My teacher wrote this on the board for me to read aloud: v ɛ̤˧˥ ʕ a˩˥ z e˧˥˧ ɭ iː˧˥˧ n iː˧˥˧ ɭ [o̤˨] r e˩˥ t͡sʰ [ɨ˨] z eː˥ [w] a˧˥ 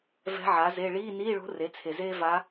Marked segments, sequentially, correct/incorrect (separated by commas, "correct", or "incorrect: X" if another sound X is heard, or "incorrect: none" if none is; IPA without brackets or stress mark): incorrect: o̤˧˥, incorrect: e˨, incorrect: v